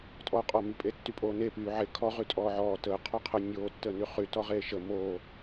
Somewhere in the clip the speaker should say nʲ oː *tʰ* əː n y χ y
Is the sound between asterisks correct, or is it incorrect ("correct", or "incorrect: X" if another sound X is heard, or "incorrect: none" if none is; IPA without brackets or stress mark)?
incorrect: tː